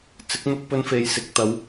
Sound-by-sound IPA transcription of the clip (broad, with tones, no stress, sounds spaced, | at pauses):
t͡s ɪ˨˥ k̚ n̪ ʊ˧ k̚ p ɵ˧ n f e˨ j s ɪ˨ k̚ t̪ ɐ˨˧ w